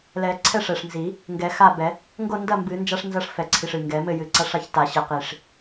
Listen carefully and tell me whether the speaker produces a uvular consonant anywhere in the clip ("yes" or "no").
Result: yes